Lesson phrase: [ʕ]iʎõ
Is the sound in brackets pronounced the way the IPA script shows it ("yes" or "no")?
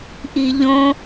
no